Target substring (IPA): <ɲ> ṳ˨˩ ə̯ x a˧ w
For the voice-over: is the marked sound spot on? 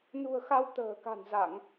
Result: no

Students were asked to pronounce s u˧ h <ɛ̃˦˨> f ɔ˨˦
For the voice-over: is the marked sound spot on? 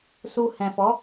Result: no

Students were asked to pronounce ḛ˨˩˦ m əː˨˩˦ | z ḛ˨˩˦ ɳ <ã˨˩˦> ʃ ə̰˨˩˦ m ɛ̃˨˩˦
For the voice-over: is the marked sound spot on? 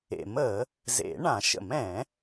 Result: yes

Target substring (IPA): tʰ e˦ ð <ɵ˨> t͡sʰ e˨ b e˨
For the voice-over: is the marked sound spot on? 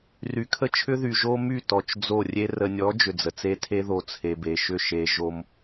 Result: no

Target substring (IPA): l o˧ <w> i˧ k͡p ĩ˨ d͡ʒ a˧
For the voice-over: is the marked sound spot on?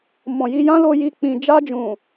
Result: no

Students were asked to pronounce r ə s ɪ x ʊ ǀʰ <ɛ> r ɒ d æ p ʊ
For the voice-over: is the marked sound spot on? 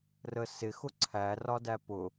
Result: no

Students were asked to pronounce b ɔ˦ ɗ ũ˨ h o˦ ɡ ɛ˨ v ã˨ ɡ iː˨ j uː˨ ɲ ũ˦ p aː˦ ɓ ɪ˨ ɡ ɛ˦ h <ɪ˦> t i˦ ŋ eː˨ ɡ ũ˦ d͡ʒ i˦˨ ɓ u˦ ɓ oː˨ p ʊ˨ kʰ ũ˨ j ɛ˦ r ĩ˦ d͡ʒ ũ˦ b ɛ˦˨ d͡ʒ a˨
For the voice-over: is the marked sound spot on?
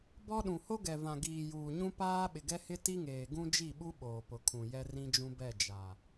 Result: yes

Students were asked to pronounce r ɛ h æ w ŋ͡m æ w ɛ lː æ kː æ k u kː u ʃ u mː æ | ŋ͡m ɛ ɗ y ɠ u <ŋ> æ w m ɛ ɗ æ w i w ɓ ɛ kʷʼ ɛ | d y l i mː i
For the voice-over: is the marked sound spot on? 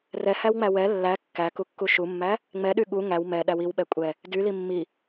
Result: yes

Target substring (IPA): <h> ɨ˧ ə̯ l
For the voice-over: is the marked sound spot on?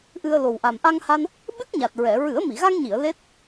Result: no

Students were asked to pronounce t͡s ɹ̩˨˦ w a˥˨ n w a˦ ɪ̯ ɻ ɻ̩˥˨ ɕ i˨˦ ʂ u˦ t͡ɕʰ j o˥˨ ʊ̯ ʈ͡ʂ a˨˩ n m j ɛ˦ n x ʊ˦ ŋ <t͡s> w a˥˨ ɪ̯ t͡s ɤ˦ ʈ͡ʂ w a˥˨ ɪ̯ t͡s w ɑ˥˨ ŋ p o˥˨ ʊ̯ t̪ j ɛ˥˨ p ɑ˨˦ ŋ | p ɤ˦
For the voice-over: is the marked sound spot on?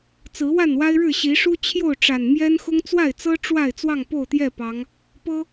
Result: yes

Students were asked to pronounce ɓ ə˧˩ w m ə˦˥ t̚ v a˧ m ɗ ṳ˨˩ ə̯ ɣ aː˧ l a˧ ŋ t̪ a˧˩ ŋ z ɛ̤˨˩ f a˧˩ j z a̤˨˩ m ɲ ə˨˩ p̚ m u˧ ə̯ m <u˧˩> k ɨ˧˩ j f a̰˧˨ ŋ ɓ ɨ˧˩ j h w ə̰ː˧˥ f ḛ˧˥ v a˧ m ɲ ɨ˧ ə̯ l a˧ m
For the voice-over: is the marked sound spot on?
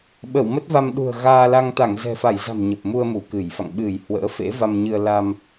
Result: yes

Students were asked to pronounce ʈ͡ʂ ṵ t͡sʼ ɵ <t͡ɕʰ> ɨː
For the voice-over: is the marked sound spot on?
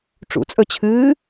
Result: yes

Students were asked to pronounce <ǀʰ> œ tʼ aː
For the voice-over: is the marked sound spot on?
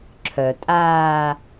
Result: no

